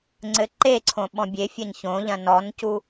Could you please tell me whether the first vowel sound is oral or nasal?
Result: oral